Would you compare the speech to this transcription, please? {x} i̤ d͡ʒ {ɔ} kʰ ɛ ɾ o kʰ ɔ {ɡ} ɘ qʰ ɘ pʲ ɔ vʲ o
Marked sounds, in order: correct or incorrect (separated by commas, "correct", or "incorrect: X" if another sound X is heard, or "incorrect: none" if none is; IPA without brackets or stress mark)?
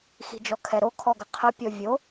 correct, correct, correct